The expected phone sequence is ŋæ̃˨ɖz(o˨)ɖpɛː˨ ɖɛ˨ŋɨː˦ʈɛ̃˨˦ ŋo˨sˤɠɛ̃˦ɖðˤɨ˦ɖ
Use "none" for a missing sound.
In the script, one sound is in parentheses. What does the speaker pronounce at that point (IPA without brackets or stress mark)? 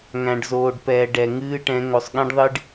oː˨